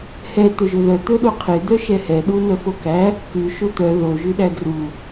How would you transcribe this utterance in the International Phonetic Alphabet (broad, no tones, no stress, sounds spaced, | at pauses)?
h ɛ t̪ ɵ ʒ ɵ ð œ t̪ ɵ ɗ o qʰ e d̪ œ ʃ ɛ h ɛ ɗ u n œ f o k æ | k ʉ ʃ o t̪ œ ð o ʒ ʉ ɗ æ d r u